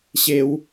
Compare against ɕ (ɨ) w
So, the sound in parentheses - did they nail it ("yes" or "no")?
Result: no